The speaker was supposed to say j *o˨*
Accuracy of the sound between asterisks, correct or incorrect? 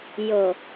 correct